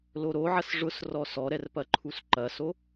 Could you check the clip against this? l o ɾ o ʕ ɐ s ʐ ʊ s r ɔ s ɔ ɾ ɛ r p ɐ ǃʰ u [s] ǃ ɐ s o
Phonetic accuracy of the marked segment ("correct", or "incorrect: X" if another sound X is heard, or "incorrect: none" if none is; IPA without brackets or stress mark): correct